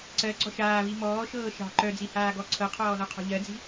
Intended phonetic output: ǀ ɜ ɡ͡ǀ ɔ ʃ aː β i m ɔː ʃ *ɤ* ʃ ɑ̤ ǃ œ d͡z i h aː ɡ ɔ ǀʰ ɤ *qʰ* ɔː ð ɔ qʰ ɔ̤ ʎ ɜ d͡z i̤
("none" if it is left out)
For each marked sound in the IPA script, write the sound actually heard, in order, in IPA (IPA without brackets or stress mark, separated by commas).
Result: ɤː, qʰ